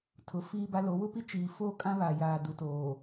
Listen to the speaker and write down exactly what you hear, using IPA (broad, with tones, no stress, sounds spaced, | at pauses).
tʰ ʊ˨ f iː˦ b a˦ l o˨˦ w ʊ˦ p i˦ t͡ʃ iː˨ f o˦ kʼ ã˦ β a˨ j aː˨ d u˨ t oː˨